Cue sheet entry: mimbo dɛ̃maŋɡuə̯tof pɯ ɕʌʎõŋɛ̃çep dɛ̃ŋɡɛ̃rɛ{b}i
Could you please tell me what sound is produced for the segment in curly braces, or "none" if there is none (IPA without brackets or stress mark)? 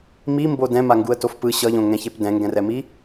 m